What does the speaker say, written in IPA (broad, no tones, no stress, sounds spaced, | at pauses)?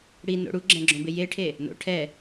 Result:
ɽ i n o̰ ɽ u ɡ͡ǁ ɛ̃ ɡ͡ǁ õ b ɪ j e ʈʰ e | n o̰ ʈʰ ɛ